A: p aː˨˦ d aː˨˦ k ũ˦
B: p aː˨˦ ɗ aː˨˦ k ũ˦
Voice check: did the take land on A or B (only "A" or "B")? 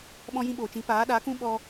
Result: B